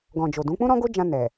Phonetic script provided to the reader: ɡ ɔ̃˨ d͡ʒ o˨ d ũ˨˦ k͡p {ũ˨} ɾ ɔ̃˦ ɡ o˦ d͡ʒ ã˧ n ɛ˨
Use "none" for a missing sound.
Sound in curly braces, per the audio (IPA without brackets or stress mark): ũ˦